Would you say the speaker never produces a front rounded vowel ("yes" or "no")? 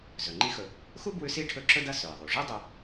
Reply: yes